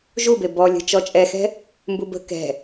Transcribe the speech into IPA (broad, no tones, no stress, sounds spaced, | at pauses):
ʒ u b e b ɔ lʲ ə̤ t͡ʃ ɔ t͡ʃʼ ɛ x ɛ̤ | m b u b ə̤ k ɛ̤